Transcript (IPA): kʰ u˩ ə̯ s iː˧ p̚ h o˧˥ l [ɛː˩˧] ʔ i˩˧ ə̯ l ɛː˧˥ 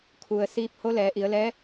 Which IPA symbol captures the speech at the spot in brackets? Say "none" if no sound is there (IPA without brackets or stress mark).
ɛː˩˧